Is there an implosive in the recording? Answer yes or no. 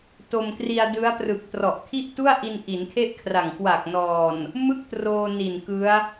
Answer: no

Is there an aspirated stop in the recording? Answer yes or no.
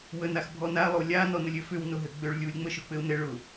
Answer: no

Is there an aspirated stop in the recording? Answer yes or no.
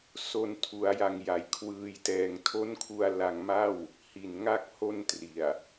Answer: yes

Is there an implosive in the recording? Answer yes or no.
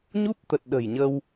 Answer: yes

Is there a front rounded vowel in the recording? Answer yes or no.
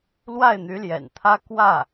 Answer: yes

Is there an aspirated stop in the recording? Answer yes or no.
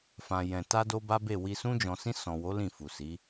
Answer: no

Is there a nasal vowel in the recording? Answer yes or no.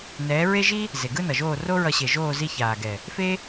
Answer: no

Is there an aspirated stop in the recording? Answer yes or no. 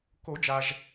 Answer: no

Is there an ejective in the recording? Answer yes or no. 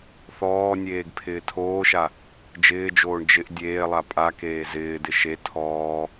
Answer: yes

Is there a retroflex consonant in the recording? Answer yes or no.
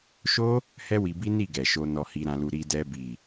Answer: no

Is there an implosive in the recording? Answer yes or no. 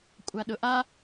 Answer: yes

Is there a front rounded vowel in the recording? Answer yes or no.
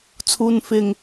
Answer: no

